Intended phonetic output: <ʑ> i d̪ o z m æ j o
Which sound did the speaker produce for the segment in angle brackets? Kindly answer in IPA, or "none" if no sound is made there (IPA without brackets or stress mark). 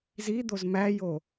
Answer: z